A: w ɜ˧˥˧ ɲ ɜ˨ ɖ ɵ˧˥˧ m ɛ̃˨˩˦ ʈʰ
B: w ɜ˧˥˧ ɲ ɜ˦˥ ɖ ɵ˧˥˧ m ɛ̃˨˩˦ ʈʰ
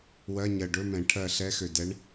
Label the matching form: A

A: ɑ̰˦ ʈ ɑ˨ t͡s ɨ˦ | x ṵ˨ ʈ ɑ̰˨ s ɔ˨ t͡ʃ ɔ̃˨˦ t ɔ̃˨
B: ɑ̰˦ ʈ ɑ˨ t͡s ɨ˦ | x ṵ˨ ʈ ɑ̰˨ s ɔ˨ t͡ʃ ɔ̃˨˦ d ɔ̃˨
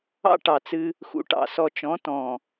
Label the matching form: A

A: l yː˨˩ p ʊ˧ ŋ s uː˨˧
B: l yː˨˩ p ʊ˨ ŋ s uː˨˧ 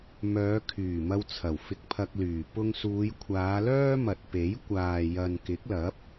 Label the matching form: A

